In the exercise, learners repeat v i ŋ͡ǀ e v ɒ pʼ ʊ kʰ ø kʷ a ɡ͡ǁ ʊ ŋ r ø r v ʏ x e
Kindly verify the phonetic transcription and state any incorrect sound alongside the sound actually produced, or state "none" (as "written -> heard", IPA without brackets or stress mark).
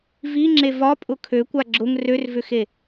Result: ŋ͡ǀ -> ŋ͡ǁ